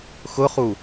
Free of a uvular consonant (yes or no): no